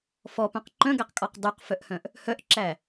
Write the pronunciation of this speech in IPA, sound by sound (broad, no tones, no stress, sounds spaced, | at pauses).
f ɔ p œ̃ q ǃ œ̃ ɡ æ q kʼ ɔ q dˤ y q f œ ʔ h œ̃ ʔ | h œ ʔ ǁ æ